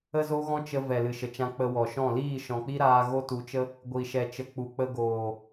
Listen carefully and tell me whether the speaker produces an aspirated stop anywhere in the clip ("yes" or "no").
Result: no